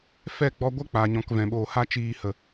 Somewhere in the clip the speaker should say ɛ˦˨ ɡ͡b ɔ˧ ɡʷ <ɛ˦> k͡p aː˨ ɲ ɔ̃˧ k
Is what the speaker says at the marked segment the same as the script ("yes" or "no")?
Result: yes